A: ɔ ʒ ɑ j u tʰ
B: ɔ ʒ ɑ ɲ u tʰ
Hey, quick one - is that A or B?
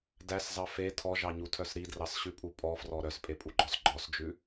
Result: B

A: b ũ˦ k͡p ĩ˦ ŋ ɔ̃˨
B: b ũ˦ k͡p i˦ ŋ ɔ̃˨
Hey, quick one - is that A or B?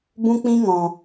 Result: A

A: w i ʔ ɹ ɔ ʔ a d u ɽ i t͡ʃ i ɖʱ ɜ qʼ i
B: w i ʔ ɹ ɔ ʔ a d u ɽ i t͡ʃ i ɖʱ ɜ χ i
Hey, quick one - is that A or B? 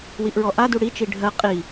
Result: A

